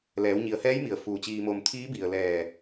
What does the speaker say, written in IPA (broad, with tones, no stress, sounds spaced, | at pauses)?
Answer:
l ɛː˩˧ w ɲ i˩˧ ə̯ h ɛː˧˥ j m i˩ ə̯ f uː˧˩ t͡ɕ iː˧ m o˧ m t̪ʰ iː˧˥ b i˩ ə̯ l ɛː˧˩